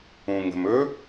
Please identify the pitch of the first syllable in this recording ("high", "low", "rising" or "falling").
low